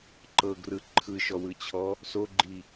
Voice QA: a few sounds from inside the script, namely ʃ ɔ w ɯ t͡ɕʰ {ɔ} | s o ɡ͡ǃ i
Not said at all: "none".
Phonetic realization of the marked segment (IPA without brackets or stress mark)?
ɔ